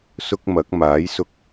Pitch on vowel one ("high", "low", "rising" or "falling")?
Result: high